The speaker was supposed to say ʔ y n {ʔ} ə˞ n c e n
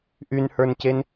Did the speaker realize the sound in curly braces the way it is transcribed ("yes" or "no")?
no